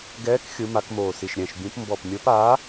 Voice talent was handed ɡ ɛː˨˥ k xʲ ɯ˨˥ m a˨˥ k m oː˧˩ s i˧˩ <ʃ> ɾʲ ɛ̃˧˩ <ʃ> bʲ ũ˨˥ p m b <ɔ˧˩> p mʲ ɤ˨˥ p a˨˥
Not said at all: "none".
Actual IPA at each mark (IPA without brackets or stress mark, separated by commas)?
ʃ, ʃ, ɔ˧˩